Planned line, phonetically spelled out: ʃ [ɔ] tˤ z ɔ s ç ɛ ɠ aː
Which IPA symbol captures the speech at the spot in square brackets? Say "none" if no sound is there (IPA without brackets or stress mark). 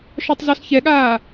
ɔ